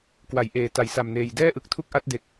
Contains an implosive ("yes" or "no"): no